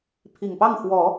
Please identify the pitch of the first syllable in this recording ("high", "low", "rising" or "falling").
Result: low